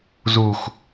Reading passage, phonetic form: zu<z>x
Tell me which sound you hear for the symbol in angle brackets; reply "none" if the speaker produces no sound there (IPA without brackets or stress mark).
none